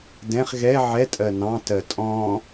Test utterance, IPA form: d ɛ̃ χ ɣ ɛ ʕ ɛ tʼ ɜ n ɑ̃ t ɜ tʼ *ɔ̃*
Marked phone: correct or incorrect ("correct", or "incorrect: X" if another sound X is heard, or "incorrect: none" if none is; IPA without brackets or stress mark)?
correct